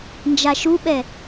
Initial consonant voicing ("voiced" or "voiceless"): voiced